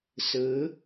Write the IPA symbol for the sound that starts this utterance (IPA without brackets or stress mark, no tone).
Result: s